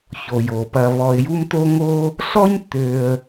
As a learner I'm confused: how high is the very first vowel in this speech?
mid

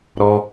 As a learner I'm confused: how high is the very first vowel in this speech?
mid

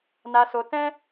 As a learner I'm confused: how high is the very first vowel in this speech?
low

